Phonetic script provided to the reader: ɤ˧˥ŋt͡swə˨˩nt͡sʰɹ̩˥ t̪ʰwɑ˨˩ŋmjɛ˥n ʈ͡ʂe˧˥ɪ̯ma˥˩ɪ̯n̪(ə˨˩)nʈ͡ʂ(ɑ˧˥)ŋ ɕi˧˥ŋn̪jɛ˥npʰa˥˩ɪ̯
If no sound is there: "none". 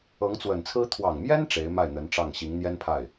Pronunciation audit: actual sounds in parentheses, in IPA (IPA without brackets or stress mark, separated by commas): ə˧˥, ɑ˥˩